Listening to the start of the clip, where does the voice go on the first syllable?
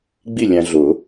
falling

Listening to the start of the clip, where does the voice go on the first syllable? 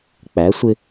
rising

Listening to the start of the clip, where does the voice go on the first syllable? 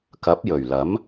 rising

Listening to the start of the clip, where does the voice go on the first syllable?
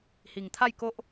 low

